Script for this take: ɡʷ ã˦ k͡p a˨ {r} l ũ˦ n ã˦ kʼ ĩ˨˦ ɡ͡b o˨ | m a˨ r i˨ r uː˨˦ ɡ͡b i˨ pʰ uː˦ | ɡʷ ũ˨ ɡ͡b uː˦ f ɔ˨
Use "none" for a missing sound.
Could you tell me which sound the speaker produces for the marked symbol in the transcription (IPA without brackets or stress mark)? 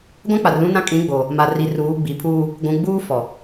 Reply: r